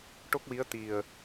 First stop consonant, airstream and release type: plain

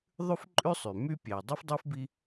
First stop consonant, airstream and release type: click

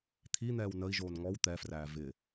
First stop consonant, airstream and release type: aspirated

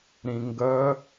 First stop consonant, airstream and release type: plain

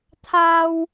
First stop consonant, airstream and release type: aspirated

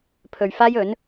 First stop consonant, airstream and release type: aspirated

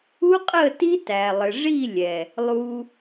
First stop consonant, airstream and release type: ejective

